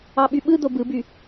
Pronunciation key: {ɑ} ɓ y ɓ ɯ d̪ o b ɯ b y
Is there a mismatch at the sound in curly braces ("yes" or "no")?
no